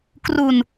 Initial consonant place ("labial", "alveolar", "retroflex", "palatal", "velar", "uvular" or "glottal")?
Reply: velar